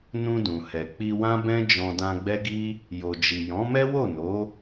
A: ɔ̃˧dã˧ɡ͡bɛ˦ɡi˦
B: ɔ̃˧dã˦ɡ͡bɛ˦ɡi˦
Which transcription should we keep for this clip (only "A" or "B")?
A